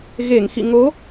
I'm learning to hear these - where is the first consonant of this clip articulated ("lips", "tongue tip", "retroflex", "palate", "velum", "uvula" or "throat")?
velum